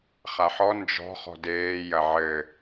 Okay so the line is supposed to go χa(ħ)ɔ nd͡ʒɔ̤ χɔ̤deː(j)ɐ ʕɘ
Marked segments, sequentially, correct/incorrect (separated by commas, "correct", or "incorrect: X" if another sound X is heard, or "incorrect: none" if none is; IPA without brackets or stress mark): correct, correct